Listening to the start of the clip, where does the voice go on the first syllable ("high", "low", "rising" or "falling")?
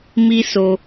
high